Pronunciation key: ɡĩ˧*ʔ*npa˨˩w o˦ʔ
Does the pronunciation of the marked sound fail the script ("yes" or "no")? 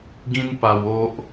yes